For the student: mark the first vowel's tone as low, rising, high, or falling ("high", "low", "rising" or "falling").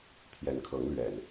rising